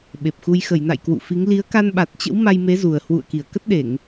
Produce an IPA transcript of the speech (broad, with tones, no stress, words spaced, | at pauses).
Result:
ɓe˨˩p̚xu˧j xə˧˩jna̰˧˨j kwṵ˧˨fi˨˦ŋ li˨˦ə̯ka˧nɓa˨˩t̚t͡ɕə̰˧˥w ma˧jme˨˦zu˨˩ə̯hwṵ˧˨ə̯ ki˧˩ə̯kə˦˥t̚ɗe˧˩˨ŋ